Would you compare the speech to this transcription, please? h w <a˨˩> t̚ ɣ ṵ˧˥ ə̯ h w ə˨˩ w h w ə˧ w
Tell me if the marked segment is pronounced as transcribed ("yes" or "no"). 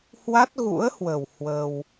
no